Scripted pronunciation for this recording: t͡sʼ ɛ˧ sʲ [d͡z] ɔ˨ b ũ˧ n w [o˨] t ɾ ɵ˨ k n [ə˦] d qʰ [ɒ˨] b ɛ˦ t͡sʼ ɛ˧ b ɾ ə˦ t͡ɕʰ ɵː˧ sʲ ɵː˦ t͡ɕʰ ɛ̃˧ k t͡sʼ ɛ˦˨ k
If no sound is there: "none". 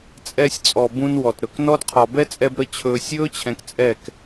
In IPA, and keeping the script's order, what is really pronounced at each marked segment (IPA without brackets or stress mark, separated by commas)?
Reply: t͡sʼ, ɔ˨, ɔ˦, ɒ˨